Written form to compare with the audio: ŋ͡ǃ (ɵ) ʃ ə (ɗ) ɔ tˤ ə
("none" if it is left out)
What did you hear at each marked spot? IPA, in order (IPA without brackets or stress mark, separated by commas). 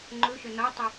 ɵ, n